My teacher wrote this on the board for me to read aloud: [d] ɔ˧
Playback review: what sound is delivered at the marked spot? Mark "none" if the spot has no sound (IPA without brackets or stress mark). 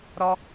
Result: ɾ